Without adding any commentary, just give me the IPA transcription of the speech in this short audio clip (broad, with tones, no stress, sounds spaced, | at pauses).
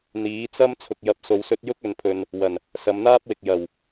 n̪ iː˨˥ t͡s ɐ˥ m t͡sʰ ʊ˨ k̚ j ɐ˨ p̚ s o˨ w s ɵ˧ t̚ j ʊ˥ k̚ ɵ˨ n pʰ ɵ˨ n | w ɐ˨˩ n | s ɐ˨˧ m n̪ aː˥ p̚ w ɪ˨ k̚ j ɐ˨˩ w